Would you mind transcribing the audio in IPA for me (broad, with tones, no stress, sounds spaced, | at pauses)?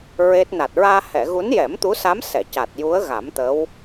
ɹ e˦˥ t̚ n a˨˩ t̚ ɹ aː˧ h ɛ˨˩˨ ɣ u˧˥ n j ɛ˨˩˦ m t̪ u˧˥ s a˧˥ m s ɛ˨˩˨ c a˨˩ t̚ j u˧˥ ə̯ ɣ a˨˩˦ m t̪ ə˧˥ w